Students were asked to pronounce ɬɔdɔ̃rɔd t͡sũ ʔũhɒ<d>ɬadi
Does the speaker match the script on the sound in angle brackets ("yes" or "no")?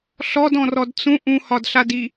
yes